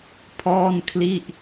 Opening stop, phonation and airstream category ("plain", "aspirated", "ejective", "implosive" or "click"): aspirated